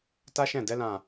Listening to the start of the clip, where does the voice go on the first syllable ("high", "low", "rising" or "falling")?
high